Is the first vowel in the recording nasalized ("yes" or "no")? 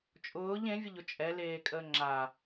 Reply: no